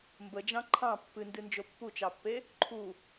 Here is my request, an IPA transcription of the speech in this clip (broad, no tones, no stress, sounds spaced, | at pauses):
m b ə d͡ʒ ɑ̃ ǃʰ ɑ̃ pː ɨ n d ɨ n d͡ʒ o pː u t͡ʃ ɑ pː e | ǃʰ u